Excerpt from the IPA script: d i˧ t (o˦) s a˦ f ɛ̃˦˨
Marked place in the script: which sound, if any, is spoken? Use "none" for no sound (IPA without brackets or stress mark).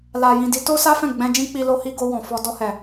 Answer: o˦